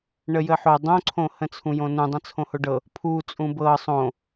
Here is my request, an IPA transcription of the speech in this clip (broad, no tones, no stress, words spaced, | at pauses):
ɳəjəħo dˤõǀʰõhə̃ t͡sʰũjõnũ dˤə̃t͡sʰõhoɖɤ | pʰu t͡sʼũbɤ sˤõ